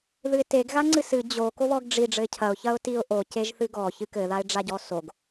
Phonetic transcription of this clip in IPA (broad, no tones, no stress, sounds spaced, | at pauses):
ð ɨ ɪ̯ t e ɡ ɣ a ŋ͡ǀ ɨ s ɨ d͡ʑ o k o β ɔ ɡ ɖ͡ʐ i ɖ͡ʐ ɘ ɪ̯ cʰ ɐ ʊ̯ ç ɐ ʊ̯ t i ʊ̯ ʔ o c e ʒ θ ɨ ɡ ɔ ç ɨ k ɘ ð a ɪ̯ ɖ͡ʐ a ɟ ɔ s o ɡ